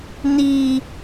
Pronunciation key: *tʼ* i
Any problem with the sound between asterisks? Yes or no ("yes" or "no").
yes